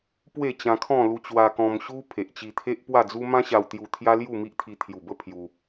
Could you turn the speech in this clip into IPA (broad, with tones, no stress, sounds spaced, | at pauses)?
p w e˥˧ t͡ɕ ã˧ kʰ ɔ̃˥˧ l u˧ t͡ɕ w a˧ k ɔ̃˧ m ɕ u˦ pʰ e˨ ʔ t͡ɕ i˧ t̪ʰ e˦ ʔ p w a˥˧ d͡z u˦ m ã˦ ɕ a˧ w t̪ j u˧ t̪ʰ j a˦ l j u˥˧ m i˦ ʔ t̪ʰ i˧ t̪ʰ j u˨˩ b ə˥˧ pʰ j u˧